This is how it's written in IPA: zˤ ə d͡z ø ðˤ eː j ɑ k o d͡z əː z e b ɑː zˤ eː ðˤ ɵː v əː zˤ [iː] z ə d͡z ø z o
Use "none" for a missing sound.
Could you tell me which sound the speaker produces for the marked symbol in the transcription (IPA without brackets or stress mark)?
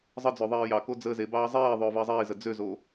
iː